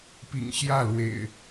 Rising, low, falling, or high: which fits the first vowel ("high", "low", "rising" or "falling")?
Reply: low